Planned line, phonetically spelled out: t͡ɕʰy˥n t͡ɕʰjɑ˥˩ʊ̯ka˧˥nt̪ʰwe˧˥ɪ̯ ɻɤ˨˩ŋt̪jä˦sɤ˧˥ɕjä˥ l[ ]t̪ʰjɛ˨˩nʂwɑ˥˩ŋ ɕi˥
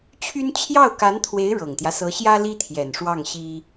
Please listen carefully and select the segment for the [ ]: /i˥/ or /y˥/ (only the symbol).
i˥